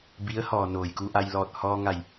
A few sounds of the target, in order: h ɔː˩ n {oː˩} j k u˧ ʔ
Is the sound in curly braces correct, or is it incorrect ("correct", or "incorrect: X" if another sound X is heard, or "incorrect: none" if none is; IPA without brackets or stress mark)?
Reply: correct